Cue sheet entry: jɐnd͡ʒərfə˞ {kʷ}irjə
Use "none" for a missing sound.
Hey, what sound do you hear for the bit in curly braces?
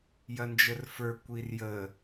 kʷ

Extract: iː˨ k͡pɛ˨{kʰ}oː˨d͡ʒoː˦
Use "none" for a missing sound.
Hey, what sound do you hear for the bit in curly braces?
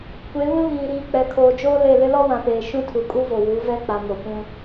kʰ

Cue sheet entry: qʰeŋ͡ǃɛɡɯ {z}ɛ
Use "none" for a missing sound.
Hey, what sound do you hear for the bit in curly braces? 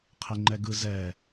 z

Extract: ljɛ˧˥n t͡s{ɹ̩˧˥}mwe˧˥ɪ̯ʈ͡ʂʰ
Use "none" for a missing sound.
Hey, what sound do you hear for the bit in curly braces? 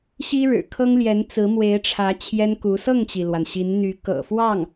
ɹ̩˧˥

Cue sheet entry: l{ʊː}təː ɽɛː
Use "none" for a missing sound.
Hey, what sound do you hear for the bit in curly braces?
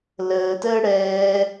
əː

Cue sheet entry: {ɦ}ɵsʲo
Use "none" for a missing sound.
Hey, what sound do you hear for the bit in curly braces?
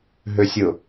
ɦ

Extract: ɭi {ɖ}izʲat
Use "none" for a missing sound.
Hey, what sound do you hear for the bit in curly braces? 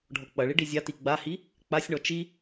ɖ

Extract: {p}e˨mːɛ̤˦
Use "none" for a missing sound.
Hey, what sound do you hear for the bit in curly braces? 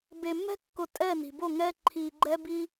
b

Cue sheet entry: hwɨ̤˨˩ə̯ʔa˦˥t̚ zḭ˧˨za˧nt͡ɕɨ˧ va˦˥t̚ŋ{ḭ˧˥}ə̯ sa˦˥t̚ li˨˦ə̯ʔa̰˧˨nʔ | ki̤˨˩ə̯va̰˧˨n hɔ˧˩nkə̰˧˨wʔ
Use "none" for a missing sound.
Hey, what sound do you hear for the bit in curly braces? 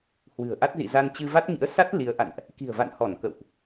ḭ˧˥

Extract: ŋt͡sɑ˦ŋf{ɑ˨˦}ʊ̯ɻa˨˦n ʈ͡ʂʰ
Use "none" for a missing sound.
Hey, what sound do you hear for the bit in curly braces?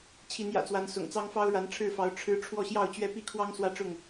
ɑ˦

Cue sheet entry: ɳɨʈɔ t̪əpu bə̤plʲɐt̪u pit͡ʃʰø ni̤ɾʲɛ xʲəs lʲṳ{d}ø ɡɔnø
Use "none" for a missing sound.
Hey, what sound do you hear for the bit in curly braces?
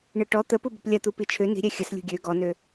ɡʲ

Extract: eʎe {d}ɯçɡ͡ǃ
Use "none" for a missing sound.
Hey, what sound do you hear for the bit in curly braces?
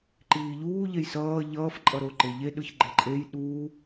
ɗ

